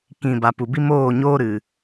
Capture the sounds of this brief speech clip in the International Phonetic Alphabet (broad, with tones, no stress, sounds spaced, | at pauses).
k ĩ˨ b a˨ p u˨ b i˦ m oː˦˨ ɲ oː˦ ɾ ɨ˨